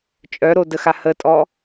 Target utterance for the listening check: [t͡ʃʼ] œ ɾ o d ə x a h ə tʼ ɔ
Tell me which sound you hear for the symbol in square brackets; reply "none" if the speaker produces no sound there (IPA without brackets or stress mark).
t͡ʃʼ